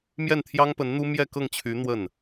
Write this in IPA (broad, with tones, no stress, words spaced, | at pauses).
mjɛ˥˩nt̪ʰjɑ˥ŋpə˧˥nn̪u˥ mjɛ˥˧kɤ˥˩ŋt͡ɕʰy˧˥ n̪wə˥˩n